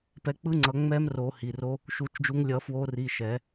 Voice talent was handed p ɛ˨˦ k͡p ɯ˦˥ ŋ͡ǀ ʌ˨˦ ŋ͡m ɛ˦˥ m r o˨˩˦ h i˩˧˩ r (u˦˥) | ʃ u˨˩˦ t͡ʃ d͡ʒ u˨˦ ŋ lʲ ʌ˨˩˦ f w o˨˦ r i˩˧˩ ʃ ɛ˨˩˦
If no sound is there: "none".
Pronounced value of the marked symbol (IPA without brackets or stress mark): o˦˥